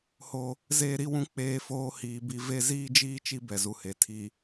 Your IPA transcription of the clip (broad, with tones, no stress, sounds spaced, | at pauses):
h o˦ | z eː˦ ɾ i˦ w ũ˦ k͡p eː˦ f oː˦ h iː˨ b i˦ v e˦ z iː˦ d͡ʒ iː˦ t͡ʃ i˦ b ɛ˨ z u˨ h e˨ tʰ i˨